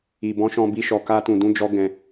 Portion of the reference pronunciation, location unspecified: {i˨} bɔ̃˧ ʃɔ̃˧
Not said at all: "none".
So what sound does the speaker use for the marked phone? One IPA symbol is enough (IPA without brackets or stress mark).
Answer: i˨